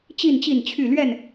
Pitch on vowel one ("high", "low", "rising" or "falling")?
falling